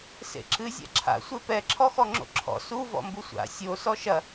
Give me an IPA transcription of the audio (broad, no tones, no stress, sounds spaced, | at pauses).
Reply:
s ḛ ǁ ɨ zʲ a̰ ǁʰ a̰ sʷ e p ɛ ǁʰ ɔ x ɔ ŋ͡ǁ o̰ ǁʰ ɔ̰ s u v ɔ̰ m b u sʷ a̰ sʲ o s ɔ ʃ ɐ